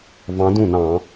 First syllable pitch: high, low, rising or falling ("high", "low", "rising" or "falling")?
rising